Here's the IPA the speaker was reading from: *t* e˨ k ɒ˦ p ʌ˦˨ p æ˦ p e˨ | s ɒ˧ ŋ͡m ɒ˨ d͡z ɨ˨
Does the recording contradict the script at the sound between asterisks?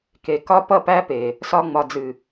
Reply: yes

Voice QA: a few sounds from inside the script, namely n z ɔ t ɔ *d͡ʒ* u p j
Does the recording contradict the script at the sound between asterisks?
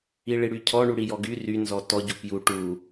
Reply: yes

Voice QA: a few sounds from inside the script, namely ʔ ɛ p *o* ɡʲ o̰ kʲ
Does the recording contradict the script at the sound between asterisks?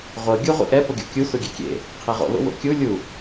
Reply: yes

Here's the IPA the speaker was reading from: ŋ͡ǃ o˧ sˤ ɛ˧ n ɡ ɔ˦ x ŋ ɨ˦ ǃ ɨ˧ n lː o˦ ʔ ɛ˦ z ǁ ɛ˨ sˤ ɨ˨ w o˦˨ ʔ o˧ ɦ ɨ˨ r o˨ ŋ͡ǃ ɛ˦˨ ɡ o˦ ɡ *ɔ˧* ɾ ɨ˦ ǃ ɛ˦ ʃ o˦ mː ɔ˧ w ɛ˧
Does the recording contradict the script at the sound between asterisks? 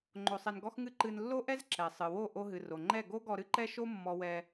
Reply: no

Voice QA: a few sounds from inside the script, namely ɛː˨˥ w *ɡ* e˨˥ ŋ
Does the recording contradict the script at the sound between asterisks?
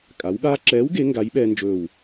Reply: no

